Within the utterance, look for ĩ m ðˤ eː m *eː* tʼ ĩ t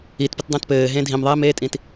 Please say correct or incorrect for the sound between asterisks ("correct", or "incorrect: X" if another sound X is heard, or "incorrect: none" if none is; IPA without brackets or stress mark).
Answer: correct